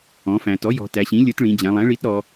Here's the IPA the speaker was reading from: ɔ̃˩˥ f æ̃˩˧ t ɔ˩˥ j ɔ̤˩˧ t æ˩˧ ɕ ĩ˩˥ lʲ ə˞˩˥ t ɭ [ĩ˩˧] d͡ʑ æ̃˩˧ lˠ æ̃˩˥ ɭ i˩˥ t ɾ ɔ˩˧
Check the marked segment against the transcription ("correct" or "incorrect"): correct